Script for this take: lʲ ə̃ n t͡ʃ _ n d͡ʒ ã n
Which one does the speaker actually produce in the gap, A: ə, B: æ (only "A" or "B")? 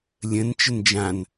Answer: A